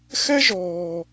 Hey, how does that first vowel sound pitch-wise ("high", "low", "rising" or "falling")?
high